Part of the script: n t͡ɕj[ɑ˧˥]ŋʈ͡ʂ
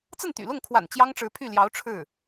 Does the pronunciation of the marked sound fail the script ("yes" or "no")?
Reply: yes